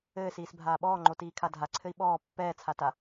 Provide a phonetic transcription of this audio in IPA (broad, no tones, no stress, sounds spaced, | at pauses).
ɘː s iː s bʱ aː ɓ ɔː ŋ͡ǃ o t iː kʰ a dʱ a ǀʰ ɘ i̯ ɓ ɔː pː ɛː t͡sʰ a t a